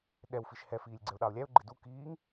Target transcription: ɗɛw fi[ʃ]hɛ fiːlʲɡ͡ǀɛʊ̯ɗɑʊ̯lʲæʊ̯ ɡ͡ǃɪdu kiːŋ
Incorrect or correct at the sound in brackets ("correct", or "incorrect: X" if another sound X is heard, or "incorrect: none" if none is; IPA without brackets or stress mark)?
correct